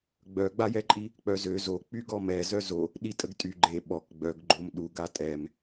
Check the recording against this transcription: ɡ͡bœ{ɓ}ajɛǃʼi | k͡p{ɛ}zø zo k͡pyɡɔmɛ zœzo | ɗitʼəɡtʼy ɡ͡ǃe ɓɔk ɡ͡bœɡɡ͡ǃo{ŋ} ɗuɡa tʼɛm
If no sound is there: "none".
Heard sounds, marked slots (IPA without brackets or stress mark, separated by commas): ɡ͡b, œ, m